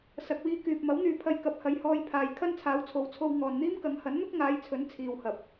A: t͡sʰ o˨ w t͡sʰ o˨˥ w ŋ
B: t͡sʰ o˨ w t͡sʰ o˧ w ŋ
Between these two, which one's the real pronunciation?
B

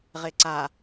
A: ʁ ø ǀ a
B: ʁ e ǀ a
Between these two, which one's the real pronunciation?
B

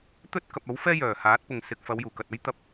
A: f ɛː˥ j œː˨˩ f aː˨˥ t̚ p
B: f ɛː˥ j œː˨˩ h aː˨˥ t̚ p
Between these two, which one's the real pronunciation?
B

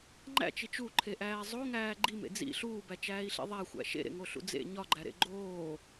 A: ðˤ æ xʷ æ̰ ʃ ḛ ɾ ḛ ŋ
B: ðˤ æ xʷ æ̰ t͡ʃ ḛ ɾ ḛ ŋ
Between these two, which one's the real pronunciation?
A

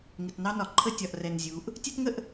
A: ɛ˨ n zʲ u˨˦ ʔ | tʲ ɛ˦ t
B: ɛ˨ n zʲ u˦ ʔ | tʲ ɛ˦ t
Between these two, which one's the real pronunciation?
A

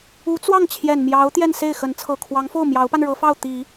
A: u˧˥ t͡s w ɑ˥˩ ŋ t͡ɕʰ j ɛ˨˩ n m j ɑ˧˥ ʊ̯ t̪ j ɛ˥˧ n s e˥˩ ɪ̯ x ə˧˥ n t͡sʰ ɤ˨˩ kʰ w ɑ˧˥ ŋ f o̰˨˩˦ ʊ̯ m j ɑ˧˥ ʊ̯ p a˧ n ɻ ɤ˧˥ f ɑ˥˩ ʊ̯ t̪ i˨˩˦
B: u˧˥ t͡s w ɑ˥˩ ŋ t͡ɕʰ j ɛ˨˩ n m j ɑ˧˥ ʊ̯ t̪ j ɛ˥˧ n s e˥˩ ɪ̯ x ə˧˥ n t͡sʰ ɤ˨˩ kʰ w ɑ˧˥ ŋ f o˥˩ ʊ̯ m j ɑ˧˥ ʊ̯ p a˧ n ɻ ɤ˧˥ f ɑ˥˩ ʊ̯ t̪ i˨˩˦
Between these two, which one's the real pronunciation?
B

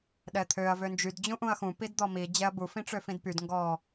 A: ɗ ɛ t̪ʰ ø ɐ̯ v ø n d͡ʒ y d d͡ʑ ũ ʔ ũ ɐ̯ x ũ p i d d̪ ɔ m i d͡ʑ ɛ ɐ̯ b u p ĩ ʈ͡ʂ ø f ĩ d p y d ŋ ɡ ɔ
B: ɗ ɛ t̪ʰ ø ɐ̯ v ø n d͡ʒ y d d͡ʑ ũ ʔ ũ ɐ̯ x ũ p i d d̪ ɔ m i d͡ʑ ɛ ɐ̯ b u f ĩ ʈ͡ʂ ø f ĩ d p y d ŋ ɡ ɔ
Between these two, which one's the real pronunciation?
B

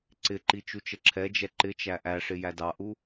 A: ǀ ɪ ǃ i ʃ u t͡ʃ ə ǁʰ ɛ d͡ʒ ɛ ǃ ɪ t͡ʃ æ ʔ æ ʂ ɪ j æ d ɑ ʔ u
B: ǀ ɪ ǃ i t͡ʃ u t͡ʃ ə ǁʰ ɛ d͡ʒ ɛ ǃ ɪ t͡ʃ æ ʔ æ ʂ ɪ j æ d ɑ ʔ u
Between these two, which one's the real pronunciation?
B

